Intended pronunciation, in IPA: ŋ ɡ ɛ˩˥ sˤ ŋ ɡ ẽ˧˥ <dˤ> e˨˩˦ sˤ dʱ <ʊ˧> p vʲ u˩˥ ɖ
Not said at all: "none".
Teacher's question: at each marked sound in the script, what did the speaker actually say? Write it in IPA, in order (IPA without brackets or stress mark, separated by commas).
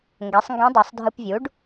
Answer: dˤ, ɯ˧